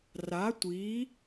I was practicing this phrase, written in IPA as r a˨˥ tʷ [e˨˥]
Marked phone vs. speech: incorrect: i˨˥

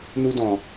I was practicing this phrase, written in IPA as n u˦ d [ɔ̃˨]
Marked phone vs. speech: correct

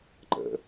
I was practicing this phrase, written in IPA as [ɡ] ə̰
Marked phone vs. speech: incorrect: ǃ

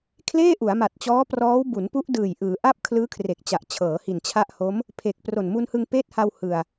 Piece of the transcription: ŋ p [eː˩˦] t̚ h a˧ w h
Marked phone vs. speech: incorrect: eː˦˥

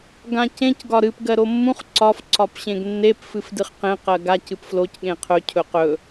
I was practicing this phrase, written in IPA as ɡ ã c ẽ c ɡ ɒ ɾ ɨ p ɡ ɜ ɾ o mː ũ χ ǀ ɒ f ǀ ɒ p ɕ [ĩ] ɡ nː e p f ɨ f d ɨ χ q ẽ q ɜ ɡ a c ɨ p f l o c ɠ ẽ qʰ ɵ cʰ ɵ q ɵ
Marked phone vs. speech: incorrect: ẽ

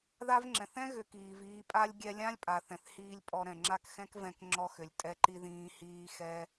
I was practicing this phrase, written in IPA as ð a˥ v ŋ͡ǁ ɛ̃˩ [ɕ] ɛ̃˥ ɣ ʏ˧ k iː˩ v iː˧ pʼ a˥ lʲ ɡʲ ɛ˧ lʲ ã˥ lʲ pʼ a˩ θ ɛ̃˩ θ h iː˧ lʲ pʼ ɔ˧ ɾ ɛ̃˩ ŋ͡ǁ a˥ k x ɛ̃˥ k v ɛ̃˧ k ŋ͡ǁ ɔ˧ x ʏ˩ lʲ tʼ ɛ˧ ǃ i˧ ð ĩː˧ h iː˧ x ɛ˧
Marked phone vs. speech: incorrect: θ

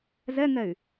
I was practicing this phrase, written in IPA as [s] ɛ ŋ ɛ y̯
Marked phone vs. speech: incorrect: z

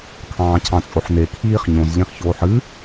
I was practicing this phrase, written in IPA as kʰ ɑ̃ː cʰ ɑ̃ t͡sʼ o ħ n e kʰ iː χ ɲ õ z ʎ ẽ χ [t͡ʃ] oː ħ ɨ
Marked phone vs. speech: incorrect: ç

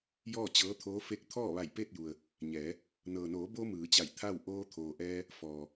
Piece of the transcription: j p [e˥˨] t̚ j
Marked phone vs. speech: correct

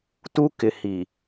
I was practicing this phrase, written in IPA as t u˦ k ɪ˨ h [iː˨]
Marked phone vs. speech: incorrect: i˨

